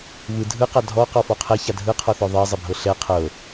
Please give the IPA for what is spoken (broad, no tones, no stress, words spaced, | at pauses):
βɯ dʱɯqa dʱɔ qɔfɔqʰɛ çadʱɯqʰɔθɔ ðˤɛzˤebʱɤ ɬɛ qʰɤ